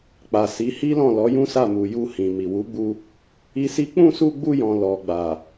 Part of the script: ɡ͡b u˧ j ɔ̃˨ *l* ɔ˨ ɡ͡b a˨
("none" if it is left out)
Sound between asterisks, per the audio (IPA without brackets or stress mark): l